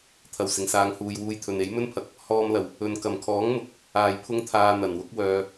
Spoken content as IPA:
t̪ʰ ɐ˨˩ w s ɪ˨˩ ŋ s aː˨ ŋ h uː˨ j w uː˧ j t̪ʰ ɵ˨ n e˨˥ j m ɵ˥ n pʰ ɐ˨ k̚ | h ɔː˧ m l ɐ˨˩ w | ɵ˨ n k ɐ˨˩ m kʰ ɔː˨˥ ŋ m ʊ˨˥ k̚ | aː˨ j pʰ ʊ˥ ŋ t̪ʰ aː˧ n̪ ɐ˨˩ n w ʊ˥ k̚ w œː˧

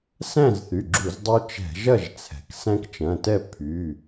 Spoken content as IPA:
s æ̃˥˨ z θ y˩˧˩ ɡ͡ǁ u˧˩˧ z dˤ o˦ t͡ʃ ɛ̤˧˩˧ ʒ ɐ˥˨ ʒ t͡sʰ ɛ̤˩ k s æ̃˦ k t͡ʃ ɐ̃˩˧˩ t ɛ˥˨ pʰ y˩˧˩

